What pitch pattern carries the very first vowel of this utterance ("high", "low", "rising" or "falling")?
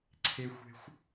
high